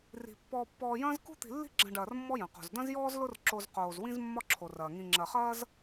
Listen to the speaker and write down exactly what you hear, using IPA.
r i̤˩ pː ɔː˨ pː ɔː˨ j ɐ̃ː˦ z k ṳ˥ t̪ i̤˨ lː i̤˦ ɡ͡ǁ ɐ̃˨ ɖ ɐː˩ r mː ɔ˦ j ɐ̃˩ q o̤˩ z d ɐ̃˥ z j ɔː˥ z l ʊ˥ r ǁ o˨ z q oː˩ z w ĩ˥ z mː ɒ˥ ǁʰ o˩ r ɐː˩ ŋ ĩ˨ ŋ͡ǁ ɐ˨ χ ɐː˥ z

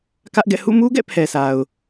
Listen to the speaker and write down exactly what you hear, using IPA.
k ä˦ ʔ ɡ ɛ̰˦˨ h ṵ˦˨ m u˦ ɡ ɛ̰˦˨ pʰ ɛ˨ s a˨ ʊ̯

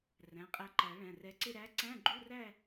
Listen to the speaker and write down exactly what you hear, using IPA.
r æ̃˩˧˩ qʼ æ˧ ǃ æ˨˩˦ ɭ æ̃˩˧˩ r ɛ˧ ǀ ɪ˥˧ ɾ æ˧˥ ǀ æ̃˧˥˧ ɡ͡ǃ u˧˥˧ r æ˥˧

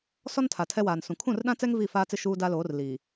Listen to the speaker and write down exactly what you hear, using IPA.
s ɔ˦ n tʰ a˨ tʰ ɛ˦ w aː˨ n s ũ˨ kʰ ũ˦˨ r ɗ ã˦ t͡s ɛ˦ ŋ v i˦˨ f aː˦ t͡s ɪ˦ ʃ uː˦ d a˦ l oː˨˦ r l iː˨

